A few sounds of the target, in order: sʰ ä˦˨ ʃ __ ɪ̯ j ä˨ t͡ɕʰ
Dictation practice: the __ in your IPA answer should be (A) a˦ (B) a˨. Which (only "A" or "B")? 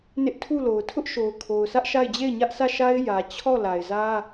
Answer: A